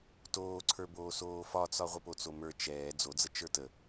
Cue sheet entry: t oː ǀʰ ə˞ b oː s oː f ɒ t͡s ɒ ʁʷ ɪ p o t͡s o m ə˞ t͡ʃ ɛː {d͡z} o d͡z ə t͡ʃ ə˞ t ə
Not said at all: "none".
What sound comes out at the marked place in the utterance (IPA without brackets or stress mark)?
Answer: d͡z